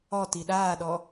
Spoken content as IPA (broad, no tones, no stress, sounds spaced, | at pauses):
ɔ t i ɗ aː ɗ ɔ